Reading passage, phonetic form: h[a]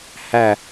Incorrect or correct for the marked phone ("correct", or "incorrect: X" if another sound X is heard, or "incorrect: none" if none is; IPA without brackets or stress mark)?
incorrect: æ